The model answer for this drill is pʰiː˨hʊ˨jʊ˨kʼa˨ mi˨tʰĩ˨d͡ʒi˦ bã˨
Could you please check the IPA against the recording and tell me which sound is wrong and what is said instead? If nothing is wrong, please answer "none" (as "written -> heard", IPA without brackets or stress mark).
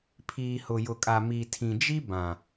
none